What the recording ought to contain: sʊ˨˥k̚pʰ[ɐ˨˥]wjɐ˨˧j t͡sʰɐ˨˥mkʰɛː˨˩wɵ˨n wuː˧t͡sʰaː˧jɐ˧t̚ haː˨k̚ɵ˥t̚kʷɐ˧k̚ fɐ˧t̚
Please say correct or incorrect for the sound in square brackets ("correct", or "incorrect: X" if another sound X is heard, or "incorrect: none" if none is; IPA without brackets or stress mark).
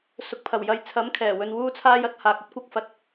incorrect: ɐ˨˩